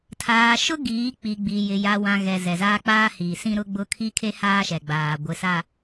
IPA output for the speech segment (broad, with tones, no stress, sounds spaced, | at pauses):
tʰ aː˨ ʃ ʊ˦ ɡ iː˨˦ k͡p i˨ ɡ͡b i˨ j ɪ˨ j a˨ w ã˨ ɣ ɛ˨ z ɛ˨ z aː˦ k͡p aː˦ h iː˨ s ĩ˦ ɾ ʊ˦ ɡ͡b ʊ˦ kʰ i˦ kʰ e˦ h aː˦ ʃ ɛ˨ ɡ͡b aː˨ ɡʷ ɪ˨ s a˨